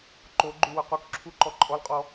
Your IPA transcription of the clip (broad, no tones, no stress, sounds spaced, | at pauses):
ǃ o ɡ͡ǃ ʉ w ʊ q u k ǁʰ u ǃ ɔ ǃʼ ɔ l qʼ ɔ